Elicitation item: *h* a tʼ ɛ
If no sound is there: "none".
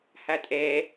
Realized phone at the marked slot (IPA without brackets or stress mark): h